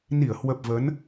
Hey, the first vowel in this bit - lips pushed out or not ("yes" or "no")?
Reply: no